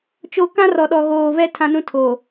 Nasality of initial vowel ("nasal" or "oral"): oral